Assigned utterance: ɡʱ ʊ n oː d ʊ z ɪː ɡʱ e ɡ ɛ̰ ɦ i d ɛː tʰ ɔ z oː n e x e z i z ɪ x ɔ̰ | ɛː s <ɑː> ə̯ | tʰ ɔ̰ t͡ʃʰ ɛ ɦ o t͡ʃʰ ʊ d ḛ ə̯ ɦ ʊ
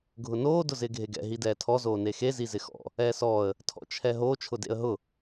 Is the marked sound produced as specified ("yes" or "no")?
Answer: no